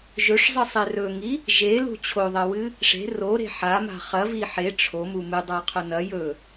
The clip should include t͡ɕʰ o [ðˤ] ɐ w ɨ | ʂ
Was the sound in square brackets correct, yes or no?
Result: yes